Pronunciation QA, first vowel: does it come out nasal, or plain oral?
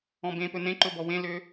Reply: nasal